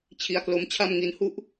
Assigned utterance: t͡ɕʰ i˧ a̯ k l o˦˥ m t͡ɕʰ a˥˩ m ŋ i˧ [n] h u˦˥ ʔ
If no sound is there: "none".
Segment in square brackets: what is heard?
n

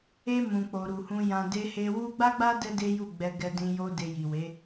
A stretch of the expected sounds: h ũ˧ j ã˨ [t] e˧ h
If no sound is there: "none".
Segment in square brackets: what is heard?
d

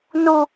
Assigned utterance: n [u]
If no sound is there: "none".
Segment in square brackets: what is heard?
u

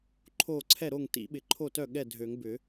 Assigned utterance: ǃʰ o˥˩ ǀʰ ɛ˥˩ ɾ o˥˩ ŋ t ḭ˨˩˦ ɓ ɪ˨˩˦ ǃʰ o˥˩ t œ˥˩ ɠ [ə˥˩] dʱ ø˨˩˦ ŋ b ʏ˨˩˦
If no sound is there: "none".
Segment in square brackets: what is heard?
ɛ˥˩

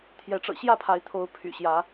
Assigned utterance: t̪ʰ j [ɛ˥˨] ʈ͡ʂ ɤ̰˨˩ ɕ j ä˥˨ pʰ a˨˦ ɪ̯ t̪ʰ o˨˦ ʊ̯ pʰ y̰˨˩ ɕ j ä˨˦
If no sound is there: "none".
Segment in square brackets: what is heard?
ɛ˨˦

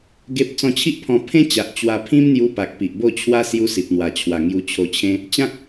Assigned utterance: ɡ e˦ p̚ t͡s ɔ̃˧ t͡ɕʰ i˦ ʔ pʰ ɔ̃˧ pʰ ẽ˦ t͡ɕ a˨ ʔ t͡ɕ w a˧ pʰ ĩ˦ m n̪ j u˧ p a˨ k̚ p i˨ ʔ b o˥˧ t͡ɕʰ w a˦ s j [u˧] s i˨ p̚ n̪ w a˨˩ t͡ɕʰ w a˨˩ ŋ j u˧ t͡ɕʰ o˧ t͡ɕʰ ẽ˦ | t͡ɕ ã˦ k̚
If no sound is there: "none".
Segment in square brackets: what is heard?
u˦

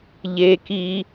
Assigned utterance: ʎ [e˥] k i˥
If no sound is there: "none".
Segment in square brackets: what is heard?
e˥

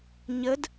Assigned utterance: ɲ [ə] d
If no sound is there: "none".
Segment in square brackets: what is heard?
ə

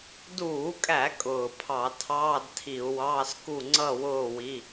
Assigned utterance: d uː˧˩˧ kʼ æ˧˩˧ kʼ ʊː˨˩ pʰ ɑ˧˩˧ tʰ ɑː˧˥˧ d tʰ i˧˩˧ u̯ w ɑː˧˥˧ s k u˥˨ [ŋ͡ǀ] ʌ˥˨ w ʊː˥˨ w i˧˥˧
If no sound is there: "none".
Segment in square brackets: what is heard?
ŋ͡ǀ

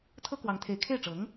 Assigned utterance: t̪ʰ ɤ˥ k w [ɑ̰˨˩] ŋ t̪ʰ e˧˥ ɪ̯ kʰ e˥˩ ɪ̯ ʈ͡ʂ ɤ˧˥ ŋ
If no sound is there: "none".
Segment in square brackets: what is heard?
ɑ˧˥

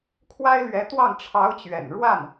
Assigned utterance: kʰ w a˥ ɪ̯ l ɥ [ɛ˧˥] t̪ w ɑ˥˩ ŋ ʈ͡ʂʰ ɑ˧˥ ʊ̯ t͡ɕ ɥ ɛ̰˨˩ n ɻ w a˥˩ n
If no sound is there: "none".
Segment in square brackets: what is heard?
ɛ˧˥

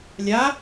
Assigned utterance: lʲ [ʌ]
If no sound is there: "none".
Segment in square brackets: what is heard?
a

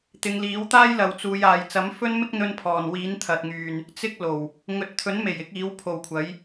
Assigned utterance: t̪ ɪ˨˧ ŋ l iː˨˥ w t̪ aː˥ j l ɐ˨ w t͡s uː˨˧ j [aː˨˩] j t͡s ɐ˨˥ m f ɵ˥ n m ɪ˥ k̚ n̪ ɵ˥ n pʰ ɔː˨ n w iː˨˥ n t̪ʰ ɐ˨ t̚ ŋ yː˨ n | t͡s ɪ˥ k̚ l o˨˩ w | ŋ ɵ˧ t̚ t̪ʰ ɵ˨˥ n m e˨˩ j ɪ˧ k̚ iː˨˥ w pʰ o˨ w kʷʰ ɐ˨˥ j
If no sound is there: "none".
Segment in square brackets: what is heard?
aː˨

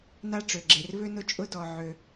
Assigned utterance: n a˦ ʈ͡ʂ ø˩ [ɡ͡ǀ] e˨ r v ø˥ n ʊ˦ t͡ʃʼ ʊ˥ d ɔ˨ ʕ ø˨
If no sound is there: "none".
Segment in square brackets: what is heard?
ɡ͡ǁ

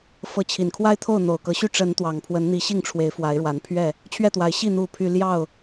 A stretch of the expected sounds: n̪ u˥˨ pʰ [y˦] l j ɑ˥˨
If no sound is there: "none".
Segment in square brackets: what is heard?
y˦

